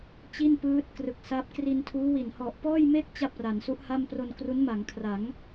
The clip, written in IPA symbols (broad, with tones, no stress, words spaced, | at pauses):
t͡ɕi˥˩n pɯː˦˥t̚krɯ˨˩k̚sa˦˥p̚ kri˧ntʰuː˦˥wi˨˩n hɔ˨˩ʔpɔː˥˩jme˥˩k̚ t͡ɕa˥˩p̚ra˩˦nsu˦˥ʔha˥˩m pro˧nkru˦˥n ma˩˦ŋkʰra˩˦ŋ